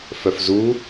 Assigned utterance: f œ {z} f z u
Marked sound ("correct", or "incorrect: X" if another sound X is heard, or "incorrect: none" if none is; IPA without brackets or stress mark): incorrect: none